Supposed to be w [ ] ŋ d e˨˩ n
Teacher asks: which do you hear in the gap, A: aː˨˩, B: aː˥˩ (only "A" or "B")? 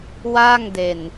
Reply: B